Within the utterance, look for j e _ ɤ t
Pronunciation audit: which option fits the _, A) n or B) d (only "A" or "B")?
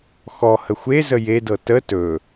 B